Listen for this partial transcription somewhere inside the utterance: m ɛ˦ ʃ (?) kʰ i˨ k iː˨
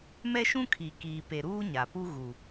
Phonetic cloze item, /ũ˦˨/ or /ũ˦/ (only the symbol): ũ˦